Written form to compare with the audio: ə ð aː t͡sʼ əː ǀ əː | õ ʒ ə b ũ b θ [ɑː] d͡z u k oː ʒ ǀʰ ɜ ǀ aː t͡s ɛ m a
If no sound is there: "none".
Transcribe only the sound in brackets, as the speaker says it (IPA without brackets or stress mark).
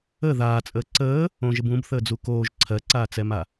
əː